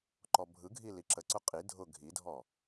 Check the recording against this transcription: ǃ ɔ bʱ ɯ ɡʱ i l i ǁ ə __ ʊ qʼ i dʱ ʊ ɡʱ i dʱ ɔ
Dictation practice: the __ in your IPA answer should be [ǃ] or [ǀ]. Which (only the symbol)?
ǀ